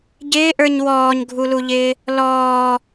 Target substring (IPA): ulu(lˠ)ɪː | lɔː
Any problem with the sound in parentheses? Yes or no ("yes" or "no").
yes